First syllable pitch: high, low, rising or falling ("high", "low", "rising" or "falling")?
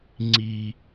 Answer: high